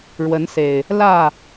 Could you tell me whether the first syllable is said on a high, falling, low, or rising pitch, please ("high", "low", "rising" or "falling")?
rising